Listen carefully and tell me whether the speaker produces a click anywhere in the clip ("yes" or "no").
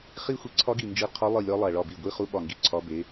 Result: yes